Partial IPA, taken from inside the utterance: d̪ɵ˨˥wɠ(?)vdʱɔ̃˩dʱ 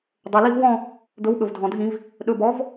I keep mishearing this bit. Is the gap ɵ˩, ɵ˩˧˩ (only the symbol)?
ɵ˩